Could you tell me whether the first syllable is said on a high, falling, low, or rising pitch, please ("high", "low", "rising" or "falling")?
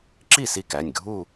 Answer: falling